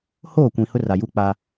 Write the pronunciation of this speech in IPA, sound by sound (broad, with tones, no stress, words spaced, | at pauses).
hoː˦˨kʷĩ˨ hʊ˦ra˨ju˦ k͡pa˦